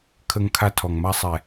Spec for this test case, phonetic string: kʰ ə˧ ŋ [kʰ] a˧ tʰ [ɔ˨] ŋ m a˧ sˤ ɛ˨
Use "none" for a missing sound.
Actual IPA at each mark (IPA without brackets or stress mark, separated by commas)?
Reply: kʰ, ɔ˨